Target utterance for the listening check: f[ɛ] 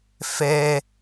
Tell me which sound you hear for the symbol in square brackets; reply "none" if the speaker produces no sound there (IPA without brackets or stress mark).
ɛ